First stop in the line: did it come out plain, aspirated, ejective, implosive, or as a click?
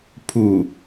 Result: aspirated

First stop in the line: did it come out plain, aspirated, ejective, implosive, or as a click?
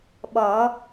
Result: implosive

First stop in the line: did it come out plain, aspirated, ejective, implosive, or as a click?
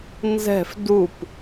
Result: plain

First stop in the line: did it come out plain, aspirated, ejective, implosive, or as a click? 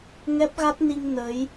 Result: plain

